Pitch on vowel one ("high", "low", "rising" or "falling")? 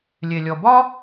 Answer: low